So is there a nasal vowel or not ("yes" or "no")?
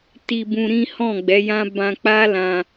yes